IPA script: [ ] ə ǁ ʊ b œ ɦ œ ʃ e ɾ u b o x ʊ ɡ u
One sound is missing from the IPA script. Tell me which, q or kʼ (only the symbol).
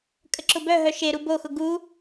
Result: kʼ